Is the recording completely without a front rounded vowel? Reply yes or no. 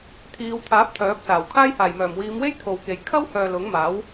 no